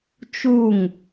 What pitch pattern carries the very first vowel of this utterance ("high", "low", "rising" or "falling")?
falling